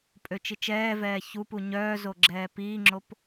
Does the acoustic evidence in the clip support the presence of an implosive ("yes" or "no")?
no